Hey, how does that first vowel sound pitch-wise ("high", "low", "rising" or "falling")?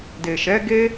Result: low